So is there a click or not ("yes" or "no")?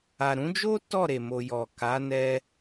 no